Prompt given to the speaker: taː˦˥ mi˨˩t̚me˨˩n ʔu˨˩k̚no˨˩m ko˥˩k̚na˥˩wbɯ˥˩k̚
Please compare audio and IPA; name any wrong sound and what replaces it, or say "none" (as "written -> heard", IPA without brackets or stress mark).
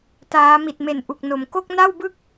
none